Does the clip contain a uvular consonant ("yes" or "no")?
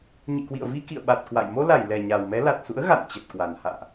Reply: no